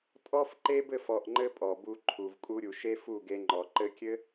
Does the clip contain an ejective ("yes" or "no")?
yes